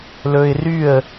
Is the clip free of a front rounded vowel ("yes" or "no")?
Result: no